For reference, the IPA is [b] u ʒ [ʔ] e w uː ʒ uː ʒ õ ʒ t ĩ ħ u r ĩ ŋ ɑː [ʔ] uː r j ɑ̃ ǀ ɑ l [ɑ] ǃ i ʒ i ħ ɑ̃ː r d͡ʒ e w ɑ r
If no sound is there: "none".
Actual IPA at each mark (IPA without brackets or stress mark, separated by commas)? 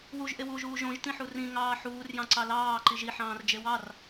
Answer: w, ʔ, ħ, ɑː